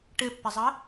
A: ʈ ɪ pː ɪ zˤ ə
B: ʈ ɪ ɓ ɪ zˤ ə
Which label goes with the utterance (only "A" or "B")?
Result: A